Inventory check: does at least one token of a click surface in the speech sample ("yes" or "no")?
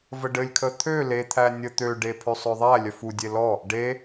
no